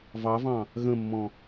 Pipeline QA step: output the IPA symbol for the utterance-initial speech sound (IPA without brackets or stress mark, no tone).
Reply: v